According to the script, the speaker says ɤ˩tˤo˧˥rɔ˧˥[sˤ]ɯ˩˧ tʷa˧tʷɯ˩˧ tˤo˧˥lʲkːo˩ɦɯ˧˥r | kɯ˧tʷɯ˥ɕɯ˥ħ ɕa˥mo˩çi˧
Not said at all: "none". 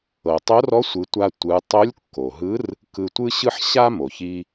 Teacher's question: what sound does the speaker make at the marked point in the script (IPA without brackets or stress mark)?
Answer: sʷ